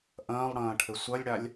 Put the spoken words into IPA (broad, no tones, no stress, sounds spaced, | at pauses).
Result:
ʔ ɐ̃ː lˠ ɽ ɐ̃ː ʈʰ ɘ sʷ ɐ lʲ ɽ a lʲ